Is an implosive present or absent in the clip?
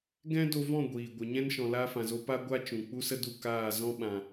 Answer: present